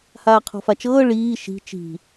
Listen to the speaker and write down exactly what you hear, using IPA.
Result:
h aː qʰ ɔ̤ f a t͡ʃ ɤː ɭ iː ʃ i̤ t͡ʃ i̤

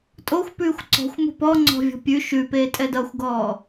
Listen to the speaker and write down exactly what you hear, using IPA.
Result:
tʼ o xʷ p ʉː xʷ ǀ ɔ̤ xʷ m o̤ p ɔ ŋ͡ǀ ɔ̤ vʲ ɔ̤ pʲ ʉ ʃ ʉ p eː tʼ ɛ d ʌ xʷ ɡ ɔː

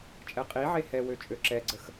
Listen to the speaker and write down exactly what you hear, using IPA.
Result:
t͡ʃʼ ɛ qʼ i ʕ e h ɛ w ø t͡ʃʼ ø ǁ ɛ ɡ͡ǀ ə x

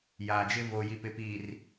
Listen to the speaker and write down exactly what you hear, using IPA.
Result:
j aː˨ d͡ʒ ɪ˦ v o˨ j i˨ p ɪ˨ p iː˨ r

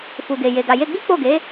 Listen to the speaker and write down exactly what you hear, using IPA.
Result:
f u˨ ɡ e˨ j e˨ ɡ a˨ j e˧ ɡ͡b i˦ k͡p o˦˨ ɡ e˨˦

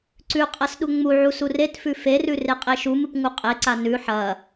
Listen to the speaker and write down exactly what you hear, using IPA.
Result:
ǀ ʉ qʼ ɐ s ɗ u ŋ͡m u ʕ u s u r e t f ʉ f e r ʉ r e qʼ e ʃ u m ɨ p ŋ u qʼ e ǀ a n ʉ ħ ɐ

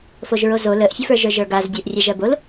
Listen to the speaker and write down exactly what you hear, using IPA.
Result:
f o ʒ ɹ o z o l ə ʔ fʲ ə f ə˞ ʒ ə˞ ʒ ə˞ ɡ a z dʲ ə˞ ʔ rʲ æ ʒ ɜ b o l

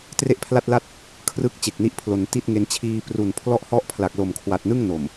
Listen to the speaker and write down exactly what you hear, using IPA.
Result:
t r e˥˩ ʔ pʰ l a˥˩ t̚ l a˥˩ t̚ | kʰ r ɯ˥˩ k̚ t͡ɕ e˨˩ k̚ n i˦˥ ʔ pʰ l o˩˦ n t i˥˩ t̚ ŋ e˧ n t͡ɕʰ iː˧ p r u˨˩ n pʰ l ɔ˥˩ ʔ h ɔ˥˩ ʔ pʰ l a˨˩ k̚ l o˨˩ m kʰ w a˨˩ t̚ n ɯ˥˩ ŋ n o˨˩ m

